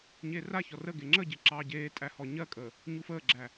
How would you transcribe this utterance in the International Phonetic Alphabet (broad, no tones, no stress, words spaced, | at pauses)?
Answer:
ɲeːraçɔ rə ɡeŋ͡ǁəɟe ǁɑːɟeːtʼæ hɔɲɜkʼəː | ɲufəːɡ͡ǁæ